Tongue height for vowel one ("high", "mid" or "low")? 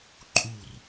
high